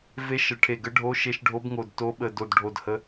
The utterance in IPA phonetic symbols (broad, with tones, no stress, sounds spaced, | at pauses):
v e˧˥ ʃ ə˧˩ ʈʰ e˧˩ ɡ ə˧˥ ɖʱ o˧˥ ʃ e˧˥ ʃ ɖʱ o˧˥ b ŋ o˧˩ d t o˧˥ ɓ ə˧˩ d o˧˩ d ɖʱ o˧˩ d h ə˧˥